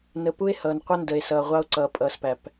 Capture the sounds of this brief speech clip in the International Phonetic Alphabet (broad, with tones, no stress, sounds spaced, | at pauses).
n ə˨ p u˦ e̯ h ʌː˨ n qʷ ə˦ n d ə˨ e̯ s ʌː˨ ʁʷ ɑ˦ o̯ ǀ ʌː˨ pʼ ʌː˨ s p æ˨ p